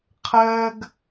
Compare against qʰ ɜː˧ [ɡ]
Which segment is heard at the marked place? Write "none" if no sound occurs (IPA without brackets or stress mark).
ɡ